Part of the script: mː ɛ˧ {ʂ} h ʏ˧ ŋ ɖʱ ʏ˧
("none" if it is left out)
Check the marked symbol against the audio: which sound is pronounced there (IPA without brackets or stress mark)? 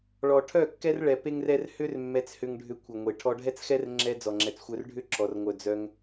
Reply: t͡s